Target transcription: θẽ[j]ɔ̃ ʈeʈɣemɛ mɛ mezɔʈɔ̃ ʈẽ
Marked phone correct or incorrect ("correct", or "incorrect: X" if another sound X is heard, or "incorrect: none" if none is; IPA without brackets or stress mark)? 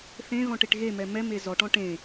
incorrect: ɣ